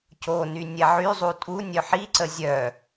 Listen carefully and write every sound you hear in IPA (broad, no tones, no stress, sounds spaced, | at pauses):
c o n y nʲ ɛ ʕ y zˤ u tʼ u nʲ œ ħ i ǀ ə zʲ œ